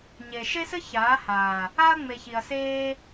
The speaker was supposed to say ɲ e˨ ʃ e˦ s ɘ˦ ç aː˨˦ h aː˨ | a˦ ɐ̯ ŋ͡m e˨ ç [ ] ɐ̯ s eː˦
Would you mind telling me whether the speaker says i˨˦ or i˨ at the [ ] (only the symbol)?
i˨